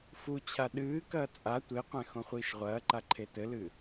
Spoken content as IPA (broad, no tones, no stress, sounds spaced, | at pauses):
f u t͡ɕʰ a ɗ ɨː k ɐː t͡sʼ a tʷ e qʷ ɛ̃ x õ χʷ iː ʃ ʁʷ ɐː ǃ a ǃʰ e t ɘ l ɨ